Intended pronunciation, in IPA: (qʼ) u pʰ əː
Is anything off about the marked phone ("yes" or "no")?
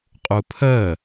no